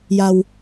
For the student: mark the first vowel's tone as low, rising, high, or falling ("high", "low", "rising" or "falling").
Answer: low